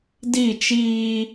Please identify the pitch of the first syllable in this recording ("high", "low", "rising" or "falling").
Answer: falling